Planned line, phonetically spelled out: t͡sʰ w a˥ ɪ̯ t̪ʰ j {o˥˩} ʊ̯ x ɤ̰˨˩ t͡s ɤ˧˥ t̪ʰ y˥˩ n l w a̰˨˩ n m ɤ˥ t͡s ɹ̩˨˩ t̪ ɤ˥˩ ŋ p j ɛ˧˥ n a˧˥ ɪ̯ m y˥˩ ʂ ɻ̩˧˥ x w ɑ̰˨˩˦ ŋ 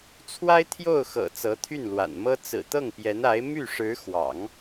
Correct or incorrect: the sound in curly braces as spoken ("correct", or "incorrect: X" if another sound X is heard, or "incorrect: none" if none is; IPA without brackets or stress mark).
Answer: correct